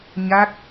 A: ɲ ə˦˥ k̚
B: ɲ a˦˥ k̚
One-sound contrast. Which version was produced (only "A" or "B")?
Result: B